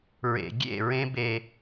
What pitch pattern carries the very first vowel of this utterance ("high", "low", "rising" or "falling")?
low